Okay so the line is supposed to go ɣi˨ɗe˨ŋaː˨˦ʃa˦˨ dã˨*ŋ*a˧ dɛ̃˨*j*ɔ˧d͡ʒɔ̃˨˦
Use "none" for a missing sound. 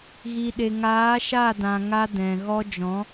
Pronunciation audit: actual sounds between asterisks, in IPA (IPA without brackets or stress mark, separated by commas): ŋ, ɣ